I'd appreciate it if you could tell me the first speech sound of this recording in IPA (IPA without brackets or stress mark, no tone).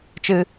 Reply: t͡ʃ